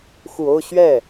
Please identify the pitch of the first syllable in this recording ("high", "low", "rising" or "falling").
low